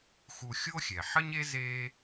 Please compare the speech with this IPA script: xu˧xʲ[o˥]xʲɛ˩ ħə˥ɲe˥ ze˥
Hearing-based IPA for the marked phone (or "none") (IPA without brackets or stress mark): o˥